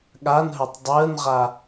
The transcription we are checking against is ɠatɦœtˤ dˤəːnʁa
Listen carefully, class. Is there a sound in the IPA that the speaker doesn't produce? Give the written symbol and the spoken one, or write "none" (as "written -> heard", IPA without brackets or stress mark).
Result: t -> n